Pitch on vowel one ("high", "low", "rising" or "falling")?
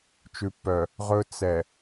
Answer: low